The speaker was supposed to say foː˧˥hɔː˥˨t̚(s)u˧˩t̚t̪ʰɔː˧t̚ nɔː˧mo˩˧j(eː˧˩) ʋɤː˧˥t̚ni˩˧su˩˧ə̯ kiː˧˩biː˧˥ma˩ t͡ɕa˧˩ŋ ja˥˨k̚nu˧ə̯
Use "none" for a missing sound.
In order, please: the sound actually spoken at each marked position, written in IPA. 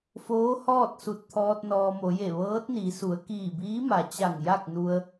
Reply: s, e˧˩

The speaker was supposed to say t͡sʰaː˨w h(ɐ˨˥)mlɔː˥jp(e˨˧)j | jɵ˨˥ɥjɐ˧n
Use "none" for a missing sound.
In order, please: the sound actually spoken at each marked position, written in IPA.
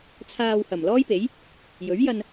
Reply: ɐ˨˩, e˨˥

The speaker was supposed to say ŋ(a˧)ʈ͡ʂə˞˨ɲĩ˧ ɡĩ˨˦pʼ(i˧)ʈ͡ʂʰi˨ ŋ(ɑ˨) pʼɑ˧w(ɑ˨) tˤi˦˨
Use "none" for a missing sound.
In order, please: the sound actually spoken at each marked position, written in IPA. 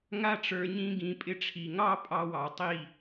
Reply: a˧, ɪ˧, ɑ˦, ɑ˨

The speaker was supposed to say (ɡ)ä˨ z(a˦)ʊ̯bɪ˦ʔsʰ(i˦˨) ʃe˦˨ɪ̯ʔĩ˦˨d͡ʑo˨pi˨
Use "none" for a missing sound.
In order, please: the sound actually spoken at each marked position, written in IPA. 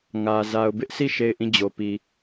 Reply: ŋ, a˨, i˦˨

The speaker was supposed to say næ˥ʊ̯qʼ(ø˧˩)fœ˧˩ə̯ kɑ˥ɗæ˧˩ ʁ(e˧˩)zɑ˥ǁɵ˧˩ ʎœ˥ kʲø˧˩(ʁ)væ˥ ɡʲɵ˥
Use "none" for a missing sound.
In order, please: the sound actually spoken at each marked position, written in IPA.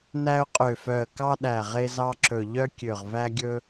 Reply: ø˧˩, e˥, ʁ

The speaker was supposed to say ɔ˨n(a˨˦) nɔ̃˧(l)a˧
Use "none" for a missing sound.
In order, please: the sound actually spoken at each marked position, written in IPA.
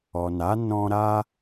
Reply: a˨˦, ɾ

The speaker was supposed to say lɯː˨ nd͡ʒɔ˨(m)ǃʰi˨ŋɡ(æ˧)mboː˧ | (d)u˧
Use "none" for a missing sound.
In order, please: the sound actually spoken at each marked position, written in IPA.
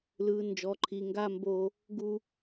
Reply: none, a˧, ɡ

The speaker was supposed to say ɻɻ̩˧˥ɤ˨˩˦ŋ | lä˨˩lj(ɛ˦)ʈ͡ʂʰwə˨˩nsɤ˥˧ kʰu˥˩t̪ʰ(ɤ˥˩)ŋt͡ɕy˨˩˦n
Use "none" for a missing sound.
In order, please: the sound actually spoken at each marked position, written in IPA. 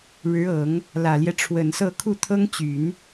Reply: ɛ˦, ɤ˥

